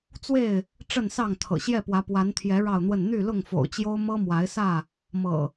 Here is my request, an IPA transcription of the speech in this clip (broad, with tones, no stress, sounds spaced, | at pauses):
t͡s w e˥˨ ɪ̯ | ʈ͡ʂ ə˥˨ n s ɑ˥˨ ŋ t̪ʰ ɤ̰˨˩ ɕ j ɛ˥˨ p w ä˨˦ p w a˨˦ n t̪ʰ j ɛ˨˦ ɻ ɑ˥˨ ʊ̯ n̪ w ə˥˨ n n̪ y˥˨ l ʊ˥˨ ŋ f o̰˨˩ ʊ̯ t͡ɕ j o˦ ʊ̯ m ɤ˦ m w a˨˦ ɪ̯ s ä˥˨ | m ɤ̰˨˩